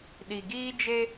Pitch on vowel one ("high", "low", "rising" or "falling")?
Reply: low